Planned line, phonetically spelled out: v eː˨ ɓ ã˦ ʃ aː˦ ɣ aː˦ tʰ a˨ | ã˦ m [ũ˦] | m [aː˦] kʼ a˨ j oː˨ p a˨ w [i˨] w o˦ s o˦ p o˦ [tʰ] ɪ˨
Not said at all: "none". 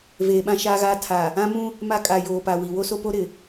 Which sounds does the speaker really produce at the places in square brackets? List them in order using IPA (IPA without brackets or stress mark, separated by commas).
ũ˦, a˦, i˨, ɾ